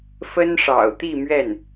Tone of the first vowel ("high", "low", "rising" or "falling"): high